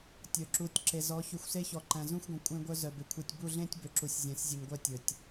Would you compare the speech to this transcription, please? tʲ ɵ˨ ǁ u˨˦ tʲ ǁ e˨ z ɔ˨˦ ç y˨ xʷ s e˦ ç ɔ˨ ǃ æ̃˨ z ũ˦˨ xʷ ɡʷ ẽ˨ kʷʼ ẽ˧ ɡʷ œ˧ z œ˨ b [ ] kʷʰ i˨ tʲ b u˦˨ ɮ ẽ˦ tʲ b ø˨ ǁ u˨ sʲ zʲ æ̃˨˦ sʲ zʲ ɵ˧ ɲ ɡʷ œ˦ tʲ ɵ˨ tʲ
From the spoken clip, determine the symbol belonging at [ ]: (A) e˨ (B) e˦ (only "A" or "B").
A